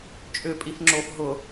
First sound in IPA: t͡ʃʼ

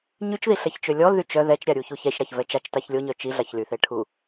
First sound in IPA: ɲ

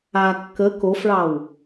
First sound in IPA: a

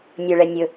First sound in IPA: nʲ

